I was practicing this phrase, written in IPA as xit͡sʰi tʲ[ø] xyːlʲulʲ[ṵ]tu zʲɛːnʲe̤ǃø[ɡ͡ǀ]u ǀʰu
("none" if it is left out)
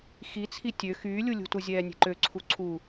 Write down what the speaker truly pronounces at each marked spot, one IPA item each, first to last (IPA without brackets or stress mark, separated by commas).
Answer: ø, ṳ, ǀʰ